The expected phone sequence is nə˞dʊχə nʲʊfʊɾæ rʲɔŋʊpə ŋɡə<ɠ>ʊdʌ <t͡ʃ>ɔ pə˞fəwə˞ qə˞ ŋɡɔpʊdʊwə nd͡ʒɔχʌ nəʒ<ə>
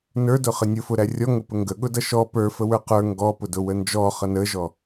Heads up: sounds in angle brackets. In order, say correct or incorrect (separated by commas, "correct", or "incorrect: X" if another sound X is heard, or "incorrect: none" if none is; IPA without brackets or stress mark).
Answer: correct, incorrect: ʃ, incorrect: ɔ